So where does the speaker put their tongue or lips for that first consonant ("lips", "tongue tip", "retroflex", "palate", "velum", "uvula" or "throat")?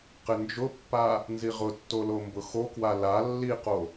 uvula